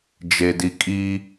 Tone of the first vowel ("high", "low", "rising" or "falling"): low